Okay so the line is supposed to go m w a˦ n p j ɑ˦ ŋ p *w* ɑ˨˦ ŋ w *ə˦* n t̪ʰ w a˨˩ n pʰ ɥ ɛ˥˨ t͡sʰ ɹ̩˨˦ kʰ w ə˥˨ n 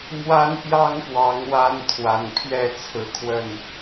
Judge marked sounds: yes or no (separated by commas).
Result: yes, no